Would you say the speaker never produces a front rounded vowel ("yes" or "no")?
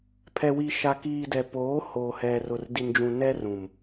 yes